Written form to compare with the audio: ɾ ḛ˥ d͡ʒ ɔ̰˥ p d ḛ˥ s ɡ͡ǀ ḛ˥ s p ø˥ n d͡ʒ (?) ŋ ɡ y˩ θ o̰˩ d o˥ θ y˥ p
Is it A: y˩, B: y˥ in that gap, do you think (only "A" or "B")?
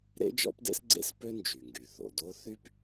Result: A